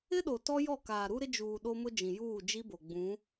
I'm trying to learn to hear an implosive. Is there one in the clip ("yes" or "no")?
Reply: yes